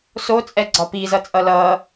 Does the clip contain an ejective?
yes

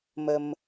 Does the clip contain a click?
no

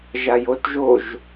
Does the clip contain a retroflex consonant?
no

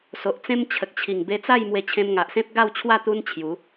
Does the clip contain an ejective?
no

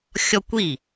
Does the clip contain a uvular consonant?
no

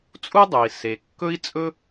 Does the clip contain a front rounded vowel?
no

